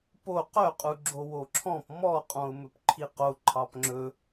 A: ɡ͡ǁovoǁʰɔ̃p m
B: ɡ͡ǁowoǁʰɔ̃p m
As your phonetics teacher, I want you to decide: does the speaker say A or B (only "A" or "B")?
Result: B